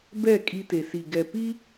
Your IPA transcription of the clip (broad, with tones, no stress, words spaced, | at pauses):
bɛ˦˨ kʼi˦te˨ si˨ɡɛ˨ pi˦